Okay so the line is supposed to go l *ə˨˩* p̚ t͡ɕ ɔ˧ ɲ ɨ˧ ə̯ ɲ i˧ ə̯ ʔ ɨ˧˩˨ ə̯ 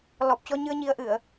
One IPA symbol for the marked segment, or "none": ɔ˨˩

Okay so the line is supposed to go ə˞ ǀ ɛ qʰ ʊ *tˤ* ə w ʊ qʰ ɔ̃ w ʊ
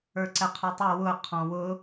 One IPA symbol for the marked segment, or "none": tˤ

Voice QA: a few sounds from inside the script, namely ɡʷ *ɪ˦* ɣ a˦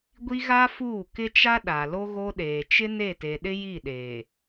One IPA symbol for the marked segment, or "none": i˦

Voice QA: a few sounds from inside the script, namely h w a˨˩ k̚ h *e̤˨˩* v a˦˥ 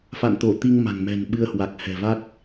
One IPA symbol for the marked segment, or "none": ɛ̤˨˩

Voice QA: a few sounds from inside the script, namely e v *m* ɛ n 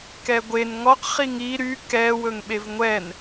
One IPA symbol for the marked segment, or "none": ŋʷ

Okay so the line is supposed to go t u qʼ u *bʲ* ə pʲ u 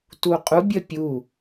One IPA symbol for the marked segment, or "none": bʲ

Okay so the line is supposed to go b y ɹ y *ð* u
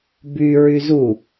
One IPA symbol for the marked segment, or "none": z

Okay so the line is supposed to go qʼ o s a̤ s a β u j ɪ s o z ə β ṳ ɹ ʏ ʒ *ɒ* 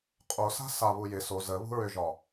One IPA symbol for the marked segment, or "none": ɒ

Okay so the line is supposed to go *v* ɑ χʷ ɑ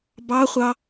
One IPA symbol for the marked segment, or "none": b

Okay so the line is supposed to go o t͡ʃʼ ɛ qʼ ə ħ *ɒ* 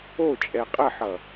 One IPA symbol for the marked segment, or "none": ʌ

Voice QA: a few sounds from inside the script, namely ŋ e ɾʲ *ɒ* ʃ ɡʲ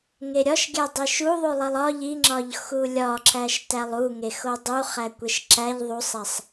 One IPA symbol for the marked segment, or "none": ɒ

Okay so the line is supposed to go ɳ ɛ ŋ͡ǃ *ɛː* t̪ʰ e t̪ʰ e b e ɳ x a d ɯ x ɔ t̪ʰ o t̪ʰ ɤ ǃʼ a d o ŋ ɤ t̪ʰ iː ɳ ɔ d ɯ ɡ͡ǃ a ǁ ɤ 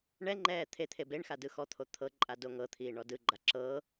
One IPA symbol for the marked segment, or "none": ɛː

